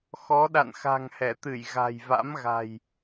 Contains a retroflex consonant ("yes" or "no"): no